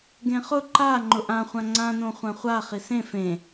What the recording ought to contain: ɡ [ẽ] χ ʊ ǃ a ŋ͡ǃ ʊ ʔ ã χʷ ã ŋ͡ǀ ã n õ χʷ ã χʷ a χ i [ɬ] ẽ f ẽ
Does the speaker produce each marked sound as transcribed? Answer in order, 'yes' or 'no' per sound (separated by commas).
yes, no